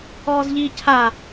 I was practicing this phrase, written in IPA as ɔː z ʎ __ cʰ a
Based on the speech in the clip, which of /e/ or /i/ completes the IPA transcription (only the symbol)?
i